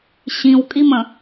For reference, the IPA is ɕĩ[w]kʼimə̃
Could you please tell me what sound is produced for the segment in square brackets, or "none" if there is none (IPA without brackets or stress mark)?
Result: w